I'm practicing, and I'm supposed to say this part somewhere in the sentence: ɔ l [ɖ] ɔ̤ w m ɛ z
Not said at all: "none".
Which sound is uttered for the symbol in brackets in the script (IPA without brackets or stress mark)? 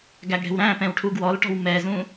ʈ